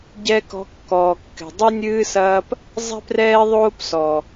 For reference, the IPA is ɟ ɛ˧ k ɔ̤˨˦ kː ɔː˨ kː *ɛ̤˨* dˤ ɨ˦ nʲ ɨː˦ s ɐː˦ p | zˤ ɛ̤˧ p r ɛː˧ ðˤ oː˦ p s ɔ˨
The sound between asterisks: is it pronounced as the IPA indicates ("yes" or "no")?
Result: yes